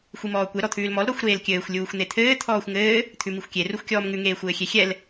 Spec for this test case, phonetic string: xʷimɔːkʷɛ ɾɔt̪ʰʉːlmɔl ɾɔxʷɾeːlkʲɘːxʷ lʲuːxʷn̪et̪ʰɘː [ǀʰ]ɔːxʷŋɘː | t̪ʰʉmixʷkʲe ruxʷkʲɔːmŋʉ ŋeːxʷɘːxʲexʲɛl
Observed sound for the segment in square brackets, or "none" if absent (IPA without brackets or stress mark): t̪ʰ